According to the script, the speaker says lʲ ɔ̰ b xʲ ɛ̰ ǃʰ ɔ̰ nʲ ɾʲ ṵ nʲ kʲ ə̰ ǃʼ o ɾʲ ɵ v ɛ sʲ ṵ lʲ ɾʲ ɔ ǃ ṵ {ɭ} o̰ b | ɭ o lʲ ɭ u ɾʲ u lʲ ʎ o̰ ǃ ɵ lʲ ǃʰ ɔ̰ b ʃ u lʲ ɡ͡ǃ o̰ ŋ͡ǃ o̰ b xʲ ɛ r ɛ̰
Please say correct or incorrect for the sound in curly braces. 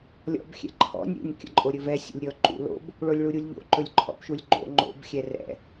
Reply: incorrect